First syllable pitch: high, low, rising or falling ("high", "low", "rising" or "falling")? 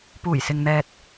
low